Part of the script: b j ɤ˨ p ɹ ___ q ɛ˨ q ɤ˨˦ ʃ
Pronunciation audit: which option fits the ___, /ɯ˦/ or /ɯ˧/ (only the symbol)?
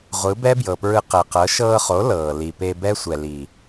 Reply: ɯ˧